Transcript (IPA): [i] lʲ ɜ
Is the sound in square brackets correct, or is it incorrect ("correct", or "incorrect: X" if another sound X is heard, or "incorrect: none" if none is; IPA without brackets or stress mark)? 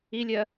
correct